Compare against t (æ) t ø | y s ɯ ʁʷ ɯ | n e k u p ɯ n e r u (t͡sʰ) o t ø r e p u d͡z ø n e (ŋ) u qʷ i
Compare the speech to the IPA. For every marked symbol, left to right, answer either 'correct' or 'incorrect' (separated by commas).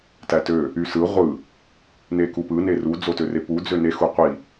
correct, incorrect, incorrect